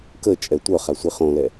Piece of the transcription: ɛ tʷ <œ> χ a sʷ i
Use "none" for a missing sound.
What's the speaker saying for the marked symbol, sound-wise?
œ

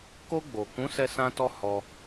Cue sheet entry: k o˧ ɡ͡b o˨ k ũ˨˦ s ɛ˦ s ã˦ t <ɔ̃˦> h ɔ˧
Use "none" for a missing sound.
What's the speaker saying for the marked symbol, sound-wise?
ɔ˦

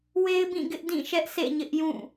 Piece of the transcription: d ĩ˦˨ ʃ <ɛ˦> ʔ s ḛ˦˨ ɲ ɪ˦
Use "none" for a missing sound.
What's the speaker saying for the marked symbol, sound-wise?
ɛ˦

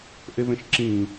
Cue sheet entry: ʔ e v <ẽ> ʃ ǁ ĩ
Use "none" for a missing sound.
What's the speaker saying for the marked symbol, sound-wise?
ẽ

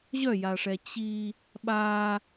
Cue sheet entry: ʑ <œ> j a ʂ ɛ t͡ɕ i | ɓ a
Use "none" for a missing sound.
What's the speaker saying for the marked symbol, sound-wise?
œ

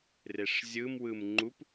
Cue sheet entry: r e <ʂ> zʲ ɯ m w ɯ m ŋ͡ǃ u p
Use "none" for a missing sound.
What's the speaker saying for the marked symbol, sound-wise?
ʂ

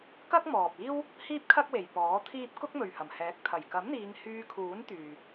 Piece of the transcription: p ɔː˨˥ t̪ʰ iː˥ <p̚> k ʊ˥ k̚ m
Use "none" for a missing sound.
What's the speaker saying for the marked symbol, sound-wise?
p̚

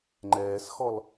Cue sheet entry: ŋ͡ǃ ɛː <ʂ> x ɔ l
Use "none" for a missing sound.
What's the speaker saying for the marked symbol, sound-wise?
s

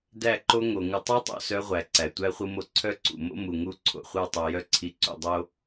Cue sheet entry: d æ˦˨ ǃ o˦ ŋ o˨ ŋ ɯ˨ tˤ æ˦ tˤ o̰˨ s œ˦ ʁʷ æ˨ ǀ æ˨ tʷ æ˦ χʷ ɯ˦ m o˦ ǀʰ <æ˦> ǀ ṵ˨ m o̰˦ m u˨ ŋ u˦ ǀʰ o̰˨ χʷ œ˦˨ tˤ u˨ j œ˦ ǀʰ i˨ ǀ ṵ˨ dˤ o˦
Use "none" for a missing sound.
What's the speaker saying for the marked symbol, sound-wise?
œ˦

